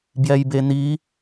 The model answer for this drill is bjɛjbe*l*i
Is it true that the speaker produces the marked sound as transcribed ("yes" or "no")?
no